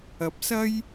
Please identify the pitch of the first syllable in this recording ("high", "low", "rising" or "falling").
rising